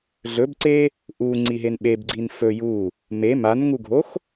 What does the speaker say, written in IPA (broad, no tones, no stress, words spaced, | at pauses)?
ɮɵbǀe | ʔuŋ͡ǀiɦen ɓebɡ͡ǀin fɵ ju | me manŋuɡʱox